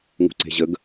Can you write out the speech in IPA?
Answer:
ŋ ṳ ǀ e̤ ʑ ə ɡ

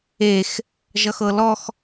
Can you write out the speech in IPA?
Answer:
e x | ʒ ʌ x ɤ l ɔ x

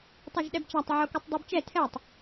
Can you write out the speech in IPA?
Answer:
tˤ ʌ ʒ ɗ ɛ b t͡ʃ a tˤ ʕ o k u tˤ dˤ u b t͡ʃ ɛ tʰ ɛ tˤ

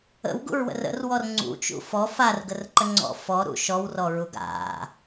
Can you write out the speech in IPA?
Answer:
ə̰ w ɡ ṵ ɹ w ə̰ r ə̰ r w ɔ r ŋ͡ǀ ṵ t͡ʃ ṵ f ɔ f a r ɡ ə r ǃ ə ŋ͡ǀ ɔ̰ f ɔ ɾ ṵ ʃ ɔ w r ɔ ɹ u ɡ a̰

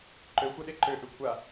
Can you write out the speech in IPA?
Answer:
ǃ ø xʷ ɛ ɗ e ǃ ø ʔ ʏ kʷʰ a

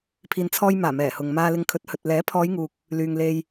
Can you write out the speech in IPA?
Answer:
pʰ iː˨ n t͡sʰ ɔː˧ j m aː˨˩ m ɛː˨˩ h ʊ˨ ŋ m aː˧ l ɪ˨˧ ŋ kʰ ɵ˨˥ t̚ h ɵ˨ t̚ l ɛː˨˥ pʰ ɔː˨˧ j ŋ uː˨ k̚ | l yː˨ ŋ l e˧ j

